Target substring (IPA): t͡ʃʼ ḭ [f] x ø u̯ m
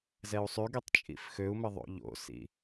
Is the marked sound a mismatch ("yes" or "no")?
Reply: no